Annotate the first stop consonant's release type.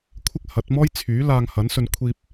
aspirated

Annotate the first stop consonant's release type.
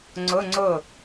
click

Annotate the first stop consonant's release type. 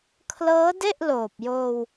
aspirated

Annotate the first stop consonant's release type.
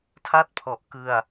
aspirated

